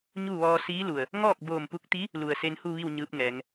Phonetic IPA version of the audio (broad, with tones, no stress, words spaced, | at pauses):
ɲu˥˨ʋɔː˧ siː˧˥lu˩ə̯ | ŋɔː˥˨k̚boː˧˩mpu˧k̚t̪i˧˥ | lu˩ə̯ se˧nhu˥˨ʋi˥˨w ɲɯː˧˥p̚ŋɛː˩˧ŋ